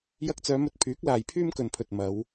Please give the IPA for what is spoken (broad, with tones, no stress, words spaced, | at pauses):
jɐ˧k̚t͡sœː˨˧mɵ˧t̚pʰyː˨˥k̚ laː˨jpʰyː˥mkɵ˨npʰɵ˨t̚ mɐ˨˧w